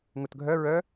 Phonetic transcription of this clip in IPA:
ŋ u t ɡʱ œ ɹ œ

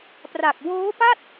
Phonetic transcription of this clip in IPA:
p r a˨˩ k̚ w oː˦˥ p a˥˩ t̚

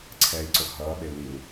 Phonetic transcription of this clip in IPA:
ǀʰ ɛ i̯ ǀ o x ɦ ʌː ɓ e u̯ l i u̯

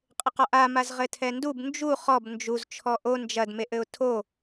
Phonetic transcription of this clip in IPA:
qʼ ɘ q ɔ ʔ a m a z ʁ ɘ tʰ ɛ n d u b n d͡ʒ u χ ɔ b n d͡ʒ u z t͡ʃʰ ɔ ʔ o n d͡ʒ ɐ d m e ʔ ɘ ʊ̯ tʰ o

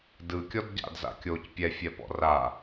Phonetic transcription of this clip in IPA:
d ɯ kʲ ɔ d ɟ a̰ d z a̰ kʲ o c pʲ ɛ fʲ ɛ p ɔ̰ r a

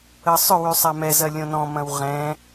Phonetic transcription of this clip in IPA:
ə sˤ ʏ w y sˤ a m ɛ z ɐ lʲ õ n ɔ̃ m ɐ̃ w ʁ ɛ̃

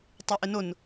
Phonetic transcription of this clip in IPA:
tˤ e ʔ ɪ n ʊ n

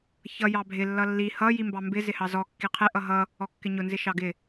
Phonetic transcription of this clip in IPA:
ç ʌ j ɑ bʱ ɪ lː ʌ lː i h ʌ j i m b ɑ m b ɪ z ɪ h ɑ z ɔ kː i qʰ ɪ ʔ ʌ ɦ ʌ | ɔ kː ɪ ɲ ʊ n z ɪ ʃ ɑ ɡ ɪ

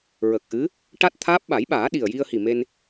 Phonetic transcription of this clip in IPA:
ɹ ə˨˩ k̚ ʔ ɨ˧˥ | ʈ a˦˥ t̚ t̪ʰ aː˦˥ p̚ ɓ a˨˩˦ j ɓ aː˨˩˦ ɗ i˨˩ ə̯ j i˧ ə̯ h i˨˩ m e˧ n

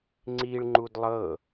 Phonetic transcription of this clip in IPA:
ŋ͡ǀ i ɭ ŋ͡ǃ u d lˠ ɤ

